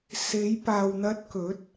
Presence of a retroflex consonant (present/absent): absent